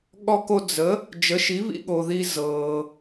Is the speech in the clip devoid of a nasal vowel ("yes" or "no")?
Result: yes